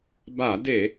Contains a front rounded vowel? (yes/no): no